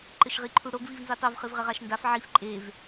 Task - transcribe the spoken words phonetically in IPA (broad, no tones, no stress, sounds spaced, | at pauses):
ǃ ɘ ʃ ʁ i ǃʰ u ɽ o ɡ v i v n z i tˤ o v χ ɨ v ʁ ɘ ʁ a ʃ n d a f ʕ i f ǃʼ e v